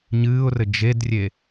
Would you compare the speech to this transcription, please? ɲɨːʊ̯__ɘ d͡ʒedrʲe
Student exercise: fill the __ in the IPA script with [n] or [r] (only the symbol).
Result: r